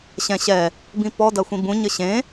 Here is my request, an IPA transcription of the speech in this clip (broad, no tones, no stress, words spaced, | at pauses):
ɕɛ̃ɕɛ | bĩpɔ dɐxʷĩbũ ɲɘɕẽ